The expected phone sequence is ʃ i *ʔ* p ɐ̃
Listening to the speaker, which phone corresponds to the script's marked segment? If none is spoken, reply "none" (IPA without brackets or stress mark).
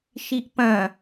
ʔ